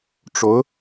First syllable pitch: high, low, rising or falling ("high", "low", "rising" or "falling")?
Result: rising